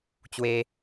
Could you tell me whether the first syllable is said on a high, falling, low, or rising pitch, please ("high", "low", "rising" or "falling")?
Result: high